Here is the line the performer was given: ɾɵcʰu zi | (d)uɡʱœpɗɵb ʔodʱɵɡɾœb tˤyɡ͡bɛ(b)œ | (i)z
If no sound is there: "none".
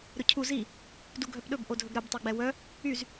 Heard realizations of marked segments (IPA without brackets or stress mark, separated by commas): d, w, y